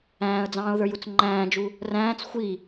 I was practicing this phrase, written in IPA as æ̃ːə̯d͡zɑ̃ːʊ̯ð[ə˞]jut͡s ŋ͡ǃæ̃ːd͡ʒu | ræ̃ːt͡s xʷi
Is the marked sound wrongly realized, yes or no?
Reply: no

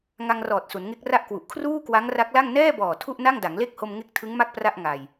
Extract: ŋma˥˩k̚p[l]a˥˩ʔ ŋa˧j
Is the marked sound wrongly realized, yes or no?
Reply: yes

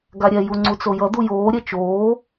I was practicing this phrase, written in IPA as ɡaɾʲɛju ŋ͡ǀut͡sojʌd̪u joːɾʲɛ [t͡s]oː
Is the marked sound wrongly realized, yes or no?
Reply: yes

